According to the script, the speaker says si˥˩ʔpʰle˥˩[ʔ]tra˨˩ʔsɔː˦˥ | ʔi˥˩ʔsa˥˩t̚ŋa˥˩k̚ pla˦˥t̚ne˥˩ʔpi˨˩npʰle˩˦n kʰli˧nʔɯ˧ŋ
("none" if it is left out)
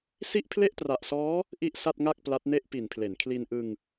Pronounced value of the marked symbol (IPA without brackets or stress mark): ʔ